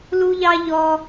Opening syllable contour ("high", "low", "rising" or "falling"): high